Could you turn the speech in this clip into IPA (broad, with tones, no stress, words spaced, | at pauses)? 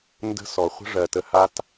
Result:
ndə̤˦sɔ˨ χʷə̤˦ʐɜ˨tə˧ha˦t